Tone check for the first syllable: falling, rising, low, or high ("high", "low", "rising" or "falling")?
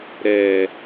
low